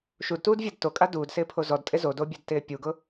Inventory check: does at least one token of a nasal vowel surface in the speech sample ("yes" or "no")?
no